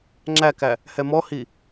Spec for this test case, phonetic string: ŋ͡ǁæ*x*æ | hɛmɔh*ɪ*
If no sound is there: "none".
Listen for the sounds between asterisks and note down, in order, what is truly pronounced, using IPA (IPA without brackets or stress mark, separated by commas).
k, i